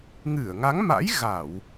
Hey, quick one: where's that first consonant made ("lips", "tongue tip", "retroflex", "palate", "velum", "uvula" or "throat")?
velum